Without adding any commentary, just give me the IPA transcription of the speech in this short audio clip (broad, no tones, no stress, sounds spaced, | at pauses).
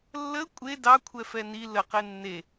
lː ə kʷʼ e d ɑ kʷʰ ɛ f ɛ n i l ə q e nː e